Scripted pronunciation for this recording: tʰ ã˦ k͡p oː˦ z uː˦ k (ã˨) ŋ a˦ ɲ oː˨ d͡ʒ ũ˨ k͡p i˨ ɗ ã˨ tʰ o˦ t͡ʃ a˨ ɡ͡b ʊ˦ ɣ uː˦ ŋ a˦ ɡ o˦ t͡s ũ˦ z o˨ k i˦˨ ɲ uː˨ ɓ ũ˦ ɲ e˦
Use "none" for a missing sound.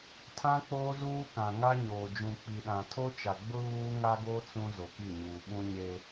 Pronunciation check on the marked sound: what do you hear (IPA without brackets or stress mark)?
ã˨